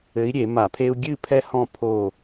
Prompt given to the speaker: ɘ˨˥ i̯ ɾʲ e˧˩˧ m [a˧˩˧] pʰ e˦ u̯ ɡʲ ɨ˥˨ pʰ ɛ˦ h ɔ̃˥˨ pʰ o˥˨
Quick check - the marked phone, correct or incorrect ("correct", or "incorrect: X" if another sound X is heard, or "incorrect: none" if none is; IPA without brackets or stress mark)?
correct